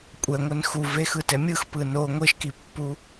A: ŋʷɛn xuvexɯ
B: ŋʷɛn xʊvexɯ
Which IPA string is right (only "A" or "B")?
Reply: A